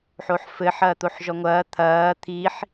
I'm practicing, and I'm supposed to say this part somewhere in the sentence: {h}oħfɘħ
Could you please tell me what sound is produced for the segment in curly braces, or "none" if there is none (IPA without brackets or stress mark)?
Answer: ħ